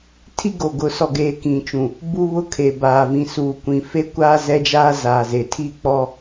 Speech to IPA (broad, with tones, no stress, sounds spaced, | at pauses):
tʰ i˦ ɡ o˨ ɡ ʊ˨ s ɔ˨ ɡ eː˨ k ĩ˨ t͡ʃ ũ˨ | b u˦ β ʊ˦ kʰ e˨ b aː˨ v ĩ˨ s uː˨ kʷ ĩ˨ f e˦ kʷ aː˦ z ɛ˦ d͡ʒ aː˦ z aː˨ z e˨ tʰ i˦˨ k͡p ɔ˦